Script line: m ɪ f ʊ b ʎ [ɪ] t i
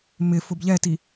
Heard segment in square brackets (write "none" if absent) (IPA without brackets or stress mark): ɛ